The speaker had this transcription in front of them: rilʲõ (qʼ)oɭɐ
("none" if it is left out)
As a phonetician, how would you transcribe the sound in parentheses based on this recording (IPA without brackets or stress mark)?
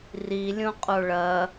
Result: qʼ